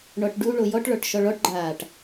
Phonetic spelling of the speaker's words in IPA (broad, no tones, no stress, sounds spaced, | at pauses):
ɳ ɔ ʈ ɖ u ɭ o j ɔ ʈ ɭ ɔ ʈ ʃ ɔ ɭ ɔ ʈ ɡ͡ǃ aː ʈ